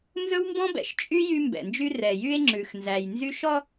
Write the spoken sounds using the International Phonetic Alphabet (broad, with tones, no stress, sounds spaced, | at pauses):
n z ɵ˦ w m b ɔ̃˦ b ɛ̰˨ ʃ t͡ʃʼ y˦ j y˦ m b ɛ̰˨ n d͡ʒ y˦ r ɛ˨ j y˦ e̯ ŋ͡ǁ ʉ˨ x n z æ˨ j n z y˦ ʃ ɔ˦